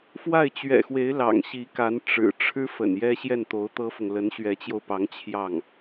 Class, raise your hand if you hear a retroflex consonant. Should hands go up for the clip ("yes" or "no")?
yes